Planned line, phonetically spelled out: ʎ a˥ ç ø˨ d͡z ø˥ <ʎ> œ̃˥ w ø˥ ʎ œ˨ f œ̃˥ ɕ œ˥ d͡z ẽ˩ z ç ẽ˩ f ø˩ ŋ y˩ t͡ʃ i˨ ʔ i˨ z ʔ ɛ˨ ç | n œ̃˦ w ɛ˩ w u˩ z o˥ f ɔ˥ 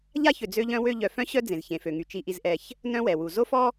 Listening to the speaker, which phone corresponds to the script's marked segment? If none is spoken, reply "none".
ʎ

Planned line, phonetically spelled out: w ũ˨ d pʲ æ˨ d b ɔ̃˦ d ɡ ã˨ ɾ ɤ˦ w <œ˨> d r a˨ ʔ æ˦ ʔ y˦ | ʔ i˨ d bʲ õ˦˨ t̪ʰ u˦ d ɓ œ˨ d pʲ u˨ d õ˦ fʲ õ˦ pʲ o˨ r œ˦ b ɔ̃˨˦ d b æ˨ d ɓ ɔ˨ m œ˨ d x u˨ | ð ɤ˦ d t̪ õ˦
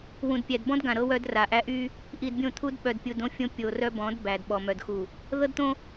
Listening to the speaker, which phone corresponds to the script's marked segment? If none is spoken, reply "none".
œ˦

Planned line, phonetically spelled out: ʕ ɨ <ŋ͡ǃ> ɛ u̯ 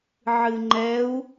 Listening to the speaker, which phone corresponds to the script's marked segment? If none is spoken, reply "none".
ŋ͡ǃ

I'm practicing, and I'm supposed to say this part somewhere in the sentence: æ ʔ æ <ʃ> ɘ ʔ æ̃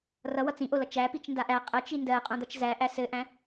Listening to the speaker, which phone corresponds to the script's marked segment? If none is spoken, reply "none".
s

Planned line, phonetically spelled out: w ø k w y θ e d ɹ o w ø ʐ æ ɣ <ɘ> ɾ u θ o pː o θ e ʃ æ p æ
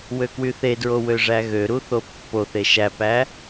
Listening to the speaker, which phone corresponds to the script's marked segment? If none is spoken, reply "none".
ø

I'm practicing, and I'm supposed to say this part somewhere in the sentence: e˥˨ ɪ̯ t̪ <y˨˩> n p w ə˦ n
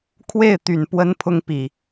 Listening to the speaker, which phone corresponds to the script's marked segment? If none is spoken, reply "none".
y˨˩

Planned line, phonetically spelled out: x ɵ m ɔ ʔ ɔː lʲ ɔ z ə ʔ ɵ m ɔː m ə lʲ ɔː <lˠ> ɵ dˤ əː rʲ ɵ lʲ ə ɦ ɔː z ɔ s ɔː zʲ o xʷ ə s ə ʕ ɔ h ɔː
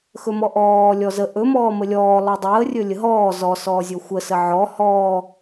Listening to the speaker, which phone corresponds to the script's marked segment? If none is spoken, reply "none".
lˠ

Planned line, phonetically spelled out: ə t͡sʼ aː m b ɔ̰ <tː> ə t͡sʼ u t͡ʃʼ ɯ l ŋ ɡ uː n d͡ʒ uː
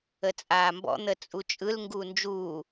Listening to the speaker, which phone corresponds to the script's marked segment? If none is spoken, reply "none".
n̪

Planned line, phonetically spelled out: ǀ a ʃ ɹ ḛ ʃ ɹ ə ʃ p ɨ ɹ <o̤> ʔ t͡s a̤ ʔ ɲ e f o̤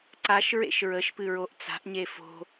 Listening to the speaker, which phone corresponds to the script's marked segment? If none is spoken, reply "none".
o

